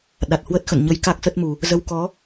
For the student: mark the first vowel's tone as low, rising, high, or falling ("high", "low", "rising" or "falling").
low